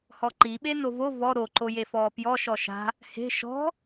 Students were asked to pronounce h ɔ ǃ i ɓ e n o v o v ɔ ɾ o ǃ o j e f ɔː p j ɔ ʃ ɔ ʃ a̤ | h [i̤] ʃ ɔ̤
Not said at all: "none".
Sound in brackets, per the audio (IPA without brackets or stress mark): e̤